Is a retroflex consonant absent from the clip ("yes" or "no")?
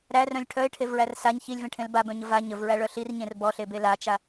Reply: no